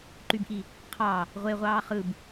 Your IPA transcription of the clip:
ǃ y b ʔ i | qʰ ɑ | ʁʷ e ʁʷ ɑː χ ɯ b

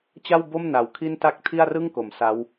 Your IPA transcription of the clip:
t͡ɕ a˥˩ w b o˥˩ m n a˨˩ w kʰ i˥˩ n t a˥˩ k̚ tʰ i˥˩ a̯ r ɯ˥˩ ŋ k o˩˦ m s a˦˥ w

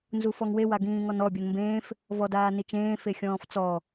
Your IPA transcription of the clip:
n z u f ɔ ŋ w e w a ɡ ĩː ŋ ɔ n ɔ bʲ ɔ n m b ẽː f | v ɔ d aː n i t͡ʃ ẽː f e xʲ ɔ̃ː f t͡s ɔ

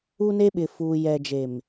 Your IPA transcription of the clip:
u˦ n e˦ ɓ ɪ˨ f uː˨ j ɛ˨ d͡ʒ e˨ m

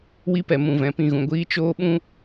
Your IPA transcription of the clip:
w i˦ p ɛ˨ m ũ˨ v ɛ̃˨ p ĩ˦˨ ɣ ũ˨ ɡʷ iː˦ t͡ʃ oː˦ ɓ ũ˦

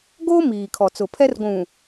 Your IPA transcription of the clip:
ɡ o˦ m iː˨ kʰ ɔ˨ t͡s ʊ˨ pʰ ɛ˦ r ɡʷ ũ˨

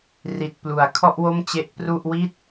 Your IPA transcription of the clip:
r i˨˩ t̚ p l u˩˦ a̯ kʰ ɔ˥˩ ʔ w o˥˩ m t͡ɕ e˦˥ ʔ p r u˥˩ ʔ w i˥˩ t̚

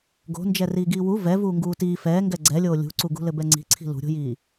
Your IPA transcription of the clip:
ɡ o̤ n d͡ʒ ɛ r iː ɡ iː w u v ɛ v uː ŋ ɡ uː t iː f ɛː ŋ ɡ ɛ ɡ͡ǀ ɛ lʲ oː lʲ ṳ ǀ u ɡ ṳ l ɘ b ɛ ŋ͡ǀ i̤ ǀʰ i̤ l ṳ ɾʲ o̤ j iː

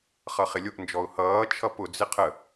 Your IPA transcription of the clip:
χ ʌ χ ɪ lʲ ʊ ʔ n d͡ʒ ɔ ʊ̯ h ʌː t͡ʃʰ ʌ p ʊ d͡z ɪ qʰ ə

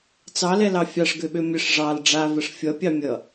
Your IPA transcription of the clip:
t͡s ɑ l ɛ l ɑ fʲ ɑ ʂ ɡ ø ɓ ø mʲ ə ʂ ʐ ɑ l ɖ͡ʐ a v ə ʂ fʲ ʌ pʲ ɑ mʲ ʌ

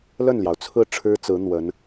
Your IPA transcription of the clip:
l ə˥˩ n l j ɑ˩ ʊ̯ t͡sʰ ɹ̩˥˩ ʈ͡ʂʰ ɻ̩˥ t͡s ɹ̩˧˥ n̪ w ə˧˥ n

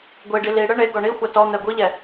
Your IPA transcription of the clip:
ɡʷ i ɖ i l i ɽ ɯ ɳ e ɡ ɔ ɳ i xʷ a t ɔ n̪ ɛ ɡʷ i ʎ ɛ

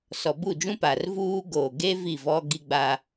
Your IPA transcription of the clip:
s ɔ˨ b u˦˨ d͡ʒ ũ˦ p a˨ r v uː˦ ɡ oː˨ ɡ e˦ v i˦˨ v ɔ˦ ɡ i˦ ɡ͡b a˦

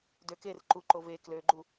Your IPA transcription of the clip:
d ø k e r ǃ u ǃ o v e k l ø ɡ͡ǃ u

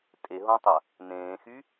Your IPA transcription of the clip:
tʼ e ɦ õ tˤ ɐ | n ẽː x y

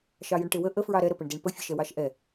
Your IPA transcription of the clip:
ʃ ɑ j ə ɳ ʈ e w ə ʔ ə f ɹ ɑ ɾ ɛ ɾ ə p ə ɳ d e ɳ p ə fʲ ə ʃ ɛ w ɑ ʃ ʔ ɛ

